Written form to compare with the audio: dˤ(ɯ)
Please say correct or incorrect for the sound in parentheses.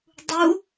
incorrect